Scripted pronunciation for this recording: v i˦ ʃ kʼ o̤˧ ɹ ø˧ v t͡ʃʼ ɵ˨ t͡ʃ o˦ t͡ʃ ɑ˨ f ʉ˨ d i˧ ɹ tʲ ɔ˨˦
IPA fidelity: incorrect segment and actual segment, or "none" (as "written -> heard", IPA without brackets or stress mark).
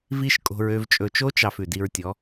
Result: none